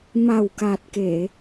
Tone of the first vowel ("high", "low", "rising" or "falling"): low